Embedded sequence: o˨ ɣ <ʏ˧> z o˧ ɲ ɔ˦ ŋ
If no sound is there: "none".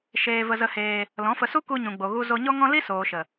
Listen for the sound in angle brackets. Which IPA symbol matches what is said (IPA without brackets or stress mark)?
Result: u˧